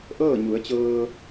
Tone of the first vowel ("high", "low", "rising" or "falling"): falling